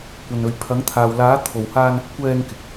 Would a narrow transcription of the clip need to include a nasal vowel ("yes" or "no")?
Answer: no